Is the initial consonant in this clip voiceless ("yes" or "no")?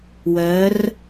no